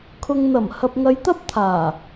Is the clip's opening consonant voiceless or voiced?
voiceless